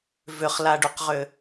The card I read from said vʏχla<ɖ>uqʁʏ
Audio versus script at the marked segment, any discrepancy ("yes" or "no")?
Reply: no